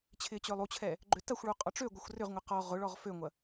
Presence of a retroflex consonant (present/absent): present